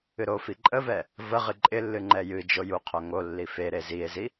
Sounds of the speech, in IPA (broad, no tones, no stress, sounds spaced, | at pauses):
ɨ ɾ o f i ǃʼ ə v ɛ | v ə ʁ ɨ ǃʼ ɪ lː ɨ ŋ͡ǃ ɛ j ɨ d͡ʒ o j u qʰ o ŋ o lː i f e ɾ e z i e̯ z i